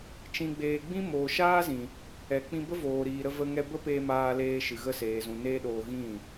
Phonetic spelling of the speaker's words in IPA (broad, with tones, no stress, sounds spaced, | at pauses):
t͡ʃ ĩ˨ ɡ͡b eː˨ ɡ͡b ĩ˦ m oː˨ ʃ aː˦ z ĩ˨ | ɛ˨ k͡p ĩ˧ b ə˦ v oː˨ ɾ iː˨ ɾ ə˧ v ə˧ ŋ ɛ˧ b ə˦ p eː˧ m aː˧ l eː˧ ʃ ɨ˨ ɣ ə˧ s eː˨ z ũ˨ n eː˦ ɗ oː˧ ɣ ĩ˦˨